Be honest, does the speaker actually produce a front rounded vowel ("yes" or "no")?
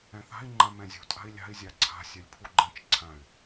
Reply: yes